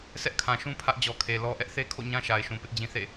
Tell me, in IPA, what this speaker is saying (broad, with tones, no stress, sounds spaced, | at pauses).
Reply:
sʰ ɛ˦ ʔ kʰ ã˨ ʃ ũ˦ pʰ ä˦ ʔ d͡ʑ ɔ˨ kʰ e˨ l ɔ˦ ʔ ɛ˦ ʔ θ e˦ kʰ o̰˦˨ ɲ ã˦ ʃ a˨ ɪ̯ ʃ ũ˨ p ɪ˦ ʔ d͡ʑ ĩ˦ θ ḛ˦˨